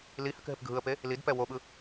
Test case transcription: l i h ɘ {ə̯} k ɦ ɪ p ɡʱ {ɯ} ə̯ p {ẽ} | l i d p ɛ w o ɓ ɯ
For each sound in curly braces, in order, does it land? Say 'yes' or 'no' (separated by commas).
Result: no, yes, no